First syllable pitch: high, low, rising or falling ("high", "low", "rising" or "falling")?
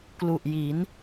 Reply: low